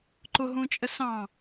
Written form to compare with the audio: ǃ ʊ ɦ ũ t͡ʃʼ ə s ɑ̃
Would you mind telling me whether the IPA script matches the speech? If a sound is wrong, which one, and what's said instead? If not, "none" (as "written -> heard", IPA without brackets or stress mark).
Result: none